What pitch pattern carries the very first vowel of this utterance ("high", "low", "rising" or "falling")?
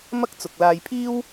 high